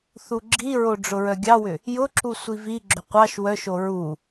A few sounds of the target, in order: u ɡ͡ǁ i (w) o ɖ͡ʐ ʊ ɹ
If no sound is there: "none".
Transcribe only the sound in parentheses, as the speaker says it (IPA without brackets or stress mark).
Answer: ɹ